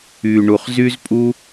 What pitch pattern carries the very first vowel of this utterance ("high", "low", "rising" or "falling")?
low